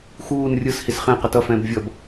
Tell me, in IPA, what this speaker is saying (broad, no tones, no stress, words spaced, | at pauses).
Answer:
xuːn rʲɯs hisχɛ̃qʌ tʌfɛ̃ːb vʲʌb